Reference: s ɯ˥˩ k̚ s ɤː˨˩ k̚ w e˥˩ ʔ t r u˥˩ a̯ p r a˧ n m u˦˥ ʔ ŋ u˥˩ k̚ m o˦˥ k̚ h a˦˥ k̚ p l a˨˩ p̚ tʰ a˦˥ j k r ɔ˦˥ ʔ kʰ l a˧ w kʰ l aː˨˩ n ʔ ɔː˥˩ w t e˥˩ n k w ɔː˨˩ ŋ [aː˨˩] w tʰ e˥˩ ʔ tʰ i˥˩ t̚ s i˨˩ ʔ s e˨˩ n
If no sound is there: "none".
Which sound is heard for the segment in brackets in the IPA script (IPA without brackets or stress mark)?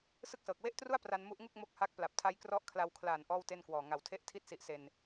a˨˩